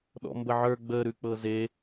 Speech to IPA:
ɗ ɔ̰ m b ə ʕ ə˞ ɡ͡b ə ɾ ʉ k͡p ɤ z e

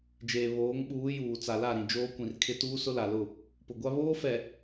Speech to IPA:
d͡ʒ eː˨ β oː˨˦ ŋ ɓ uː˨˦ j uː˨ t͡s a˨ l a˦˨ ɾ ĩ˨ d͡ʒ oː˦ kʷ ĩ˨ r kʰ ɪ˦ t uː˦ s ʊ˦ l a˨ l ʊ˦˨ | p ʊ˨ ɡʷ a˦ β oː˦ f ɛ˨

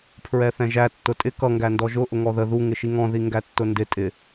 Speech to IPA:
pʰ ɹ ɛ θ ɛ̃ ʒ æ tː ʊ tʼ ɪ k ʌ ŋ ɡ æ n d ɔ ʒ ʊ ʔ ʊ ŋ ɔ ð ə ð u ŋ ɪ ʃ i ŋ ɔ̃ ð i ŋ ɡ æ tː ʊ n d ɪ tʼ ɪ

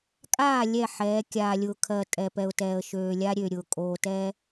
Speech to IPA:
kʼ aː˦˨ lʲ ɛ˦˨ ħ ɛː˨˦ kʲ aː˨ lʲ ʊː˨ kʰ ɜ˨ tʼ ɛ˨ p ɛ˨ ʊ̯ t ɛː˨ ə̯ ʃ øː˨ lʲ a˦ ɾʲ ø˨ ɾʲ ʊː˨ kʼ oː˨ t ɛ˦

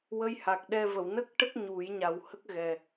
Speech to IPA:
w ə˧ j h a˨˩ k̚ ɗ ɛ˧ v ə˨˩˨ w n ə˦˥ k̚ ʈ ə˦˥ k̚ ɲ u˨˩˦ j ɲ a˨˩ w h ə˦˥ k̚ ɣ ɛ˨˩

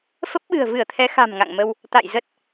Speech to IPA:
f ə˦˥ p̚ ɓ ɨ̤˨˩ ə̯ v ɨ˧˩ ə̯ t̪ʰ ɛ˨˦ x a̤˨˩ m ŋ a̰˧˨ ŋ m ə˧ w | t̪ a̰˧˨ j z ə˦˥ t̚

